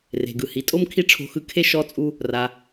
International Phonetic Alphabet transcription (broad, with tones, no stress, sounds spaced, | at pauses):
r e̤˩ ɡ ɯ˩ h i˩˧ tʼ o˥ m kʰ i˥ ʈ͡ʂʰ o̤˧ x ɯ˧ kʰ e˥ ʃ ɔ˧˥ t͡sʼ u˧ | r a˩